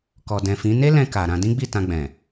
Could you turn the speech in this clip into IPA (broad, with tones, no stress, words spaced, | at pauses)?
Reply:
kɔ˨dɛ̃˨fĩ˨˦ ne˦lɛ̃˧ ka˨ ɾã˧dĩ˦ɡ͡bi˦˨ tã˧ɡ͡bɛ̃˨